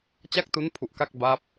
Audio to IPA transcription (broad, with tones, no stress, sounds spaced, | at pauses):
t͡ɕ a˥˩ k̚ t u˦˥ n pʰ u˨˩ ʔ k a˥˩ k̚ b a˦˥ p̚